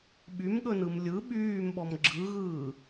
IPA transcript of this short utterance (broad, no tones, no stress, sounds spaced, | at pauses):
ɓ y m ɠ ɵ n ɯ m lʲ ɯ ɓ yː m ɓ ɔ m ɡ͡ǁ ɯ ɣ ɯː